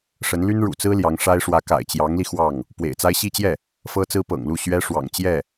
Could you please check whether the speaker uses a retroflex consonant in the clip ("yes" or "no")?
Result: yes